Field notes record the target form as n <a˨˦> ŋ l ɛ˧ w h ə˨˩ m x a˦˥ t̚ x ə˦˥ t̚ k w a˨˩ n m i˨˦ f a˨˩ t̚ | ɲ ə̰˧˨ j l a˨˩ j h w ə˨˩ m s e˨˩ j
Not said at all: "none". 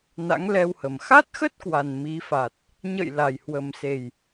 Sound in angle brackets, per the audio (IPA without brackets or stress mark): a̰˧˥